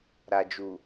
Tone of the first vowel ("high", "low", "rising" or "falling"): low